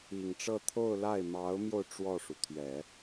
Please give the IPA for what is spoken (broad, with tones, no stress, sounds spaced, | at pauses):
i˨˩ ŋ ʈ͡ʂ ɤ˥˧ t̪ʰ o˥˧ ʊ̯ l a˥˩ ɪ̯ m ɑ˧˥ ʊ̯ m j o˧ ʊ̯ ʈ͡ʂ w ɔ˥˩ ʂ u˩ t̪ʰ ɥ ɛ˨˩˦